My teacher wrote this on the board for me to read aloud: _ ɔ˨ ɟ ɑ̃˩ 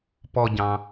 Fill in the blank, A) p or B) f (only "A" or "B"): A